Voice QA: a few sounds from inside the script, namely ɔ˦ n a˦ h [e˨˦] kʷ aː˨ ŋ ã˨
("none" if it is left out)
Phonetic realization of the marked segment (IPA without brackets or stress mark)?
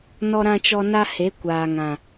e˨˦